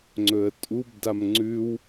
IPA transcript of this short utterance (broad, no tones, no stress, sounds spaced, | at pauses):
ŋ͡ǀ ɵ ə̯ tʼ u b d a m ŋ͡ǀ ʉ w